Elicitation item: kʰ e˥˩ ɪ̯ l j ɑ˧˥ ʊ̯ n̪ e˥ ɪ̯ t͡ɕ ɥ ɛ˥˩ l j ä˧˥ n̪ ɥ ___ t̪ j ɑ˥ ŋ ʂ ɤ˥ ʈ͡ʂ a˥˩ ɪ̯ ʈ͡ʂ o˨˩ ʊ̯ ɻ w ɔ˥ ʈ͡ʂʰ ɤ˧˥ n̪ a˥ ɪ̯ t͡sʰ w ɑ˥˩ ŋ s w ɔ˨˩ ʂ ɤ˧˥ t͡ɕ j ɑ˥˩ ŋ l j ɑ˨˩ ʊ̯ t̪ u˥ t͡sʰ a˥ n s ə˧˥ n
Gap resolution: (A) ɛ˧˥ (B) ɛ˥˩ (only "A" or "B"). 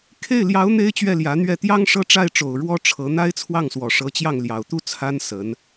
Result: B